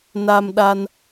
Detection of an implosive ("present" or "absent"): present